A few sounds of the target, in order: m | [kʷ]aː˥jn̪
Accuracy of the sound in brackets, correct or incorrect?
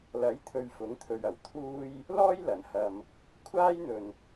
incorrect